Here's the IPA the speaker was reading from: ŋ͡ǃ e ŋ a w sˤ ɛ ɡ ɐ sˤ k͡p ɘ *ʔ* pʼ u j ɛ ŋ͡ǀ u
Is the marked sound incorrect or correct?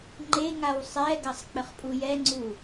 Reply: incorrect